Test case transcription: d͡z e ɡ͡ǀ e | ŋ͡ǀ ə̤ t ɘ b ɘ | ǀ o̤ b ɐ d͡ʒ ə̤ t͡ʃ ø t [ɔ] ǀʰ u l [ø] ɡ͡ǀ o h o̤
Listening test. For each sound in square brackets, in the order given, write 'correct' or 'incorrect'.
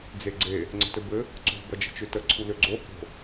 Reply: incorrect: ə, correct

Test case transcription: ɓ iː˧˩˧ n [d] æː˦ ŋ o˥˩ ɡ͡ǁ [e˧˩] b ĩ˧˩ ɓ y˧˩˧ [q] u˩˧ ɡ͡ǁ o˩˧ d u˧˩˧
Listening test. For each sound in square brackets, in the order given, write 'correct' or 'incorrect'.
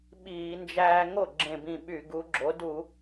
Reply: incorrect: d͡ʒ, incorrect: ẽ˧˩, incorrect: ɡ

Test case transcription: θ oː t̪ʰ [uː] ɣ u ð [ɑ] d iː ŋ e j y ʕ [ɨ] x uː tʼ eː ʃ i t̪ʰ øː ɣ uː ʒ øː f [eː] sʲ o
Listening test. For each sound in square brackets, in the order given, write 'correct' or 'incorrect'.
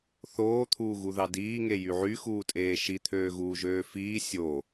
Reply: correct, correct, incorrect: y, incorrect: iː

